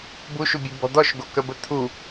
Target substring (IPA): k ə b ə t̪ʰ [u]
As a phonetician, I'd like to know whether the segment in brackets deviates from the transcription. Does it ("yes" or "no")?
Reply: no